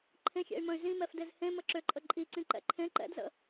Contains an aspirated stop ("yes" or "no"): yes